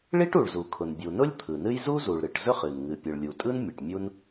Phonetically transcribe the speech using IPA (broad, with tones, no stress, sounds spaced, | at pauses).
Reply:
ɭ i˥ ʈ u˩ ɭ z u˩ kʰ ʊ˩ n bʲ u˩ n ʊ˥ lʲ t̪ʰ ɯ˩ n ɨ˥ j z u˥ z u˩ ɭ ɾ ɨ˩ ʈ z ɵ˥ χ ɨ˩ n ŋ ɨ˩ pʲ ɯ˩ ɭ lʲ u˩ tʼ ɯ˥ n mʲ ɯ˩ ʈ mʲ u˥ n